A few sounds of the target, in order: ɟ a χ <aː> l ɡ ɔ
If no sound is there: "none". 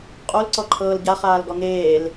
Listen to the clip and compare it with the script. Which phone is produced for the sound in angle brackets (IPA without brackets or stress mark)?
aː